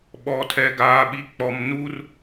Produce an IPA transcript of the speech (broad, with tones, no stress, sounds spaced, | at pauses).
ɓ ɔ˨ tʰ ɛ˨ ɡ aː˨ ɓ i˨ k͡p ɔ˨ m n u˦ r